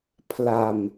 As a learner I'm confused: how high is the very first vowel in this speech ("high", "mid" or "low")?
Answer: low